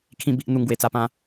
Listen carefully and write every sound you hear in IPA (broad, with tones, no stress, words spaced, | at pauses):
kʰĩ˧ bi˦ʔn̪u˧ŋ ɡwe˨˩t͡sa˧pã˧